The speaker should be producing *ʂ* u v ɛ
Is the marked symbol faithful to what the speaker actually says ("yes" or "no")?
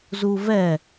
no